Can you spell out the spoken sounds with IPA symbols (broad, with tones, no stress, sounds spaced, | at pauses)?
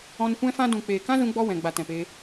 ɔ̃˧ n kʷ ɛ̃˦ f ã˦ d ũ˨ k͡p eː˨ k ã˦ z ũ˧ ɡ͡b ɔ˦ w ɛ̃˨ ɡ͡b a˨ t ɛ̃˨ p e˧